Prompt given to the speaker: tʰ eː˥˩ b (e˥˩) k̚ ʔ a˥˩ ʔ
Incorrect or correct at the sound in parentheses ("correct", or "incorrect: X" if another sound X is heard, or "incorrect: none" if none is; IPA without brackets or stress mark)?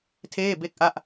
correct